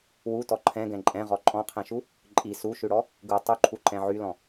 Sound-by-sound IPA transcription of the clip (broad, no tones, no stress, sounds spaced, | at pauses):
w u t ɔ ǃʰ ɛ̃ ɡ ɛ̃ ǃʼ ɛ̃ ʁ ɔ ǃʼ ɔ̃ qʰ ɛ̃ ʃ u | ǃʼ i s u ʃ ʉ ɽ ɔ | ɡ u tˤ u ǃʰ u ǃ ɛ̃ ʕ y l ɔ̃